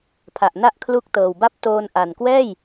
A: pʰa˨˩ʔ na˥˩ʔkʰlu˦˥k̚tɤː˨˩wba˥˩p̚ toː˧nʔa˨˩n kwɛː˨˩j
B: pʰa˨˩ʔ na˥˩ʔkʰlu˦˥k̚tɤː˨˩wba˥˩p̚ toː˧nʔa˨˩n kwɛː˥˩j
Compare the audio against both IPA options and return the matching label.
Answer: B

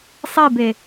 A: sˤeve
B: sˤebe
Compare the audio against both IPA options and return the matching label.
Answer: B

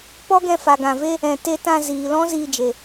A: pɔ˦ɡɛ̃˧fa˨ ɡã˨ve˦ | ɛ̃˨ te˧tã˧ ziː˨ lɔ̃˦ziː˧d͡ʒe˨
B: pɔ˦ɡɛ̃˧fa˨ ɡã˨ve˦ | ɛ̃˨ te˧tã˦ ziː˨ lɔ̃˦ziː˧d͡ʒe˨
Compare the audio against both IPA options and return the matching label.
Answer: A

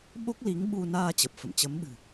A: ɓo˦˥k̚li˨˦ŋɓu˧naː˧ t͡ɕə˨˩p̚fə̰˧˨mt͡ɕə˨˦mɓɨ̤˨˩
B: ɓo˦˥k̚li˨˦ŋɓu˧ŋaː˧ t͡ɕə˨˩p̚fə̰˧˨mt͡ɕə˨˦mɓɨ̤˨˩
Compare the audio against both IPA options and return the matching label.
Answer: A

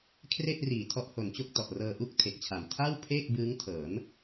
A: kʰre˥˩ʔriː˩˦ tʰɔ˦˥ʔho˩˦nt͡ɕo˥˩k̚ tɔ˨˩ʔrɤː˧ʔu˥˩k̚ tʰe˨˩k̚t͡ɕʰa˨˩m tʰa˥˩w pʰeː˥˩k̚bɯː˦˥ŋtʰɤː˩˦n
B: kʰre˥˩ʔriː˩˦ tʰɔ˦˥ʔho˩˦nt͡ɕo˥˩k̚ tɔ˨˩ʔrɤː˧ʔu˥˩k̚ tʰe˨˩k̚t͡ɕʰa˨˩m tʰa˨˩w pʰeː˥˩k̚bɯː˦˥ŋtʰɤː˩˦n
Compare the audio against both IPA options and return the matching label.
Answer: A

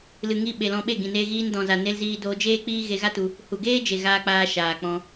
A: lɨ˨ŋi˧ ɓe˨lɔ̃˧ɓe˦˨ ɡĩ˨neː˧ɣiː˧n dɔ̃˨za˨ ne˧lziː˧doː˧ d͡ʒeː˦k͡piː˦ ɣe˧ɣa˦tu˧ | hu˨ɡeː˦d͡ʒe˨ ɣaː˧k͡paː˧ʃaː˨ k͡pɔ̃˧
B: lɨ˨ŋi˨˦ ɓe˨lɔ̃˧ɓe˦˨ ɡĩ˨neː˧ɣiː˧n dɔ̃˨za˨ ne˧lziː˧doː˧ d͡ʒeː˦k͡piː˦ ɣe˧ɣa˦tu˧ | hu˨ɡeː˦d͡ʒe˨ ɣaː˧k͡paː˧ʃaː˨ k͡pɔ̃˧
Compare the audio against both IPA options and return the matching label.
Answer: A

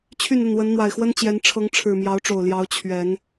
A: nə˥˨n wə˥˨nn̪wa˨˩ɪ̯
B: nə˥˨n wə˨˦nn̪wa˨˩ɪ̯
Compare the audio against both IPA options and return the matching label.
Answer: B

